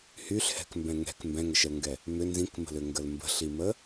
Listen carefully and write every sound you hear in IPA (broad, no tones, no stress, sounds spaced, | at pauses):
h y ɬ h ɛ̤ k m b ɛ̃ ŋ ɛ̤ k m b ɛ̃ ŋ ə ʃ ə l ŋ ɡ ɛ | m ʏ n z ĩ k m ə̤ l ʏ ŋ ɡ ə l m b ə̤ ɬ i m ə